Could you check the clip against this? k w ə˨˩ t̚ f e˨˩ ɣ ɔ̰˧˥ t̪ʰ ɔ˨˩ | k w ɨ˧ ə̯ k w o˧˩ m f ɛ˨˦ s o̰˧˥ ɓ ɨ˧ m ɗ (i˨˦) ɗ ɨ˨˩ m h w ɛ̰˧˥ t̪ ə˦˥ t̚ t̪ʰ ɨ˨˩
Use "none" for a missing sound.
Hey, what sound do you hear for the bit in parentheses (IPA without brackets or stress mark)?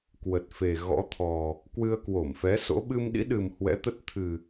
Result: ḭ˧˥